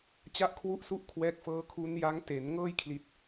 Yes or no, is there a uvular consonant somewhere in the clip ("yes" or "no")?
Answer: no